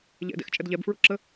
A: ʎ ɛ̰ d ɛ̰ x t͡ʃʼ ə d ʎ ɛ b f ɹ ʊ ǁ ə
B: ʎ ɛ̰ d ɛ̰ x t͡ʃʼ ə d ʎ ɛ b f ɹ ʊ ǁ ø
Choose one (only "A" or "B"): A